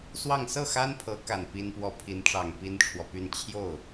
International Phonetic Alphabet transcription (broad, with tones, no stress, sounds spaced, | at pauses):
s w ɑ˥˧ ŋ s ɤ˥˩ x a˥ n pʰ ɤ˧˥ k a˨˩ n p i˥ n p w ɔ˥ pʰ i˧˥ n ʈ͡ʂ ɑ˨˩ ŋ p i˥ n ʈ͡ʂʰ w ɔ˨ p y˥˧ n t͡ɕʰ j o˥˩ ʊ̯